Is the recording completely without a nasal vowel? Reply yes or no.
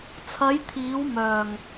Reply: yes